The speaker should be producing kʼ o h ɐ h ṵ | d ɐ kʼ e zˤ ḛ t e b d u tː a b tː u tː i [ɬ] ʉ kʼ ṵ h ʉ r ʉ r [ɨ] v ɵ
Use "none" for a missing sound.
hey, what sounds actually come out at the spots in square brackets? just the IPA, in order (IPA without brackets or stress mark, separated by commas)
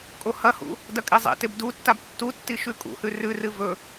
ʃ, ɨ